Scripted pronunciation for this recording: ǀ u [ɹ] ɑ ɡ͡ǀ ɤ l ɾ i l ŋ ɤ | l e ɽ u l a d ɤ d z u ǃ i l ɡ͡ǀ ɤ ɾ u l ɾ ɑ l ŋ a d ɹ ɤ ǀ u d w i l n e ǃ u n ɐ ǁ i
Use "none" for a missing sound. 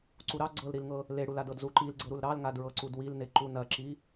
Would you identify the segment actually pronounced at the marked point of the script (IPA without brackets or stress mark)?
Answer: ɾ